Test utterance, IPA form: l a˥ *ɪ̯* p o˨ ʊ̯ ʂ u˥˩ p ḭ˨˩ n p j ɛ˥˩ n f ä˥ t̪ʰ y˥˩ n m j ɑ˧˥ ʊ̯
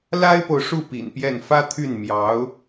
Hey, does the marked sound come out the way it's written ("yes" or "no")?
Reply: yes